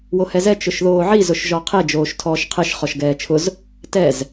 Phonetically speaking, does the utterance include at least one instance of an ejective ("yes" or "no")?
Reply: no